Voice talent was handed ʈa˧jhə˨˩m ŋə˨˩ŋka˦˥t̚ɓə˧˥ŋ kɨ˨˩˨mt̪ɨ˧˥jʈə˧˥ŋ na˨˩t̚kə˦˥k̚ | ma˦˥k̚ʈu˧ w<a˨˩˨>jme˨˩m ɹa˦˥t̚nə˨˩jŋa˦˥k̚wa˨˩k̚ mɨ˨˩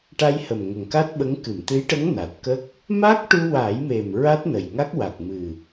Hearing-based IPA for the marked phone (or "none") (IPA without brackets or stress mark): a˨˩˦